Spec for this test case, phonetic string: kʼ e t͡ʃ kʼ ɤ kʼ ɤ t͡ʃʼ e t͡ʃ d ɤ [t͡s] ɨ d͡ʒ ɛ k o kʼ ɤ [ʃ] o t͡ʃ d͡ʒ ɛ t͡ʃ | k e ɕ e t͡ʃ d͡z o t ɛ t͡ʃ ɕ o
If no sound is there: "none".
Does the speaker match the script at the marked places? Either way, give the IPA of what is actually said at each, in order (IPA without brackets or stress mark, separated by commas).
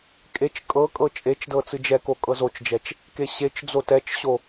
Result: t͡s, z